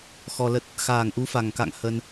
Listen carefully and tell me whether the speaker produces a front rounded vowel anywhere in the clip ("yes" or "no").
no